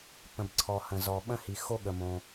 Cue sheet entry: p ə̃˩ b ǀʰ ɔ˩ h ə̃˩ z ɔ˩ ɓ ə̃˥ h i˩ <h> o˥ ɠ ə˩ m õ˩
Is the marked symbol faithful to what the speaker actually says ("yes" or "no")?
no